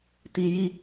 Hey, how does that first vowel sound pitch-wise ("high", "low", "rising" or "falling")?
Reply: low